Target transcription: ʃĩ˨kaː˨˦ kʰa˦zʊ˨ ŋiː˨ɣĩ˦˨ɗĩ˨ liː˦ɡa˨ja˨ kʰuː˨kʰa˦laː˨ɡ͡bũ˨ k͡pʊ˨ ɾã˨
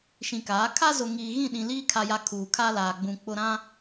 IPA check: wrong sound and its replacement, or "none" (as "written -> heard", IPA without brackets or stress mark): ɡ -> kʰ